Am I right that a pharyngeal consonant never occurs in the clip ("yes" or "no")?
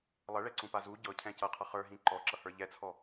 yes